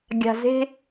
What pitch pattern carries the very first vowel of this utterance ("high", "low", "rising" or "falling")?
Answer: low